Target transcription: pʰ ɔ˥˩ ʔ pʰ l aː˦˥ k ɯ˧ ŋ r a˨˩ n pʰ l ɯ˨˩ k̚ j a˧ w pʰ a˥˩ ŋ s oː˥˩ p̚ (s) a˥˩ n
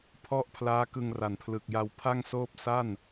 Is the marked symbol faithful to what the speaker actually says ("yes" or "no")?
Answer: yes